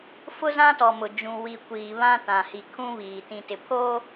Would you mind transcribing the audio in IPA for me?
f ʊ˦ z ã˦ t ɔ˨ m ʊ˨ d͡ʒ ũ˨ w i˨ kʷ iː˨ β ã˦ t ã˨ h i˨ kʰ ũ˦ β iː˨ t ĩ˨ t ɪ˨ pʰ oː˦

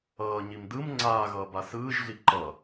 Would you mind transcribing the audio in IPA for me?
ʌː ɲ i m d ɯ m ŋ͡ǀ aː ɣ ʌː b a s ɯː ʒ ɮ i ǃ ʌ

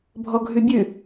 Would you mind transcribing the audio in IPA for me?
bʱ ɔ ɡʱ ʉ bʲ ʉ

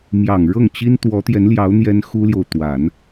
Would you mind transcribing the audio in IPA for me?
m j ɑ˨˩ ŋ ɻ ɤ˥˩ ŋ t͡ɕ i˥ n t̪ w ɔ˧˥ t̪ j ɛ˧˥ n l j ɑ˧˥ ʊ̯ n̪ j ɛ˥ n x u˥ l j o˨ ʊ̯ t̪ w a˨˩˦ n

